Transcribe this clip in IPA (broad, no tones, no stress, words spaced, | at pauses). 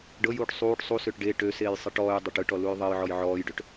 ɖɤjuːʈ sˤuːʈ sˤusøʈ ɖe ʈøseːj sˤeʈɔːjdˤɐʈ ɯʈɔ lujðˤejʕɔj ʕɔːjɖøʈ